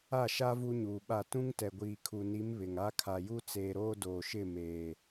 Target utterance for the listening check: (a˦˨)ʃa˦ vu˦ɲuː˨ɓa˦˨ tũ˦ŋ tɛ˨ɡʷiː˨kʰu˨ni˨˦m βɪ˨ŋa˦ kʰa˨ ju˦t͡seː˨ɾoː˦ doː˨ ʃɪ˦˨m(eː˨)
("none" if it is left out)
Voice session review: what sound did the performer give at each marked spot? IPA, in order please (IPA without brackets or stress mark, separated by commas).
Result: a˦˨, eː˨